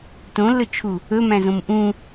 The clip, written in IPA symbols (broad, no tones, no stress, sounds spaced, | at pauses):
t õ lː ɵ t͡ʃʰ u | ɵ m æ̃ z õ m ʔ ũ